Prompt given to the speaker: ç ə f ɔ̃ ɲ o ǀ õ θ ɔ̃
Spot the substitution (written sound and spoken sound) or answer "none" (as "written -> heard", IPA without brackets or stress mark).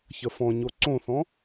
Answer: none